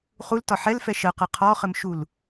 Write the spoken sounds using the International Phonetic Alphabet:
χul tɒħɛl fɛʃɜqɛ qʰɔχɘmʃul

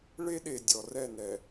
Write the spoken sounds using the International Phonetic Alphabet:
ɭe˦ɗe˨ dʲɔ˨rɛ˦˨ nɛ˨

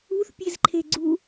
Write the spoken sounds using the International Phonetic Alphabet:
uθpʲezǃʰe ɡ͡ǀu

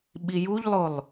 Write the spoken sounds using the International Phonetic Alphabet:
ɓijuʎlˠolˠ

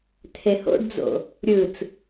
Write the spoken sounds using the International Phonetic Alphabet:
t̪ʰeho̰ɖd͡zo̰ | ɾʲɯt͡s

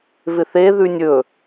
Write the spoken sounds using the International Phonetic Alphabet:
vɪθeðʉnʲ ɵ

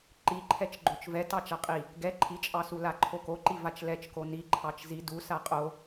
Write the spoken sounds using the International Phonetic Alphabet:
ǃiǃʰɛt͡ʃ ɡ͡ǃot͡ʃvɛ tɑt͡ʃaqʼi | ɡɛ ǃʰit͡ʃʼɑsu laǃʰokoǃi vat͡ʃlɛt͡ʃko niǃʰɑt͡ʃ zi du saqʼo

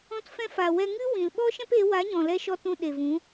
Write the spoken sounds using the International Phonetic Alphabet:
ɔ̃˧tfɛ̃˧fa˨ wɛ˧ŋɨ˦wĩ˨l ɓɔ˦ʃɛ̃˦pe˨˦ wa˨˦ ɲɔ̃˨lɛ˧ʃɔ˧ tũ˧ɗe˨ vũ˨˦

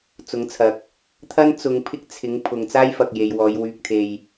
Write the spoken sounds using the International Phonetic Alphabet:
t͡sʊ˨˥ŋt͡sʰɐ˨k̚ | t̪ʰɐ˥n t͡sʊ˧ŋpʰɪ˥k̚ t͡sʰɪ˨˥ŋpʰʊ˨ŋ t͡saː˥jfɐ˨k̚ je˨jwɔː˨˧j wyː˧k̚t̪ʰe˧j

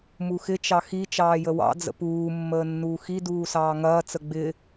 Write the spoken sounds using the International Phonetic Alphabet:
muxɪt͡ʃɑ xi t͡ʃɑːjəwɑ̰ d͡zə̰puːmːəːnːuː xi duːsɑːŋɐːt͡sə ɡ͡bɪ

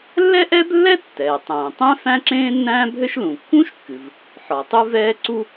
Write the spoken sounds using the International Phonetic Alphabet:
lːɛ˥ʔɛ˥blːɛ˥ tːɛː˩tˤẽː˩tˤẽ˥ fæ̃˥ǁẽː˥nːæ̃ː˥bʱɘ˥ʃ lũ˩kːũ˥ʃ kːɨ˩v | ħɔ˩tˤɨ˥vɛː˥ ǀu˥

